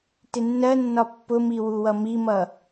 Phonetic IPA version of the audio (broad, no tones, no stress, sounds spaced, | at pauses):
t ɪ nː ɜ nː ɒ pː ʊ m i w u w ʌ m i m ʌ